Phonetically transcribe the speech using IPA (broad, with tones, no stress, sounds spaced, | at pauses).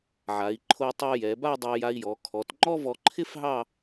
ʕ a˩˧ i̯ ǃʰ o˧ tˤ o˧ j ɛ˩˧ b a˥˧ dˤ ɛ˧ j a˧ i̯ j ɔ˩˧ kʰ ɔ˩˧ t ŋ͡ǃ ɔ˥ v ɔ˧ ǃʰ ɪ˥ f ɦ ɑ˥˧